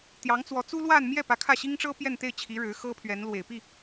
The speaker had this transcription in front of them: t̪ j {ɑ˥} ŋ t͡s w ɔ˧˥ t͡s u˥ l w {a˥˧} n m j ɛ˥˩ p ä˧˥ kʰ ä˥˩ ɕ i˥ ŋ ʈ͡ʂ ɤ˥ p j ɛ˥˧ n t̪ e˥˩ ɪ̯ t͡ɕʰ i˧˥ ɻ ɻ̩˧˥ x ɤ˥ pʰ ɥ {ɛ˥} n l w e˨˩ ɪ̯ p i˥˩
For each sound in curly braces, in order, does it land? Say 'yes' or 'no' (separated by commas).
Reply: no, yes, no